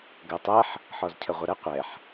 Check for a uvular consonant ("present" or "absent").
present